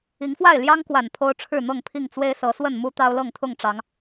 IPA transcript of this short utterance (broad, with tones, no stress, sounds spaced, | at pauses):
i˨˦ ŋ f w a˥˨ ɪ̯ l j ɑ˦ ŋ k w a˨˩ n pʰ o˦ ʊ̯ ʈ͡ʂʰ ɻ̩˥˨ n̪ ɤ˥˨ ŋ pʰ i˥˨ ŋ t͡s w e˦ ɪ̯ s ɤ˨˦ s w ə˥˨ n m u˦ t̪ ɑ˦ ʊ̯ l ɤ˥˨ ŋ t̪ʰ ʊ˥˨ ŋ ʈ͡ʂ ɑ˨˦ ŋ